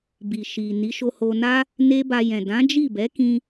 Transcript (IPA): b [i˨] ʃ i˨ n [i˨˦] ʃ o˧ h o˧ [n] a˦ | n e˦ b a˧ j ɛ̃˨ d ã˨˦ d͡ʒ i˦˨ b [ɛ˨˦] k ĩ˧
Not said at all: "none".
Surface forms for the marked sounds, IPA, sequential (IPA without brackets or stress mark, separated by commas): i˨, i˨˦, n, ɛ˨˦